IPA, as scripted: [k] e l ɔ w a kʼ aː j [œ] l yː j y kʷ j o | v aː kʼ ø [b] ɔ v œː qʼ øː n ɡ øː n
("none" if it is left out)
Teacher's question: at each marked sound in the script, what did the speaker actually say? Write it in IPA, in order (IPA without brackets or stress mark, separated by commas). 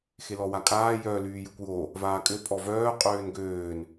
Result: x, œ, pʼ